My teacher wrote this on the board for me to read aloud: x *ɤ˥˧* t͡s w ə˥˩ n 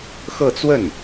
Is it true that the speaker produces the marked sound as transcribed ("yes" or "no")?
yes